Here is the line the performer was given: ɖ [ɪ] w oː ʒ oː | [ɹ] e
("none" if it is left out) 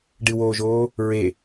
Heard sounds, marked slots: ɨ, ɹ

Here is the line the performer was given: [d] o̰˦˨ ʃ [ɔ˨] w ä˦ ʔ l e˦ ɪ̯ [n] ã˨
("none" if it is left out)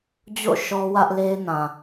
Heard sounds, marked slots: d͡ʑ, ɔ˦, n

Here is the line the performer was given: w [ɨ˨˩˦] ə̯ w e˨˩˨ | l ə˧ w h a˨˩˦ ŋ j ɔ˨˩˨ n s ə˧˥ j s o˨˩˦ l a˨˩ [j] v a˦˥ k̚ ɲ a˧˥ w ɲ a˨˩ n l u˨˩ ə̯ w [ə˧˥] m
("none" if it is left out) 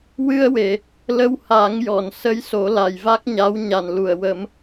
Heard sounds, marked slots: ɨ˧, j, ə˨˩˦

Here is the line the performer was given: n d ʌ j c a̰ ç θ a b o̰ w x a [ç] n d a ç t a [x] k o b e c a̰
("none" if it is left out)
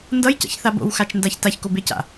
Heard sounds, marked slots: t͡ʃ, ç

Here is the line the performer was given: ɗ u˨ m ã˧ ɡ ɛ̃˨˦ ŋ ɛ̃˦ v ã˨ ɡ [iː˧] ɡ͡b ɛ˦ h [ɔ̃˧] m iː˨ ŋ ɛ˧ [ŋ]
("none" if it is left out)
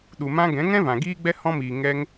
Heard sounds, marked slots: iː˦, ɔ̃˧, ŋ

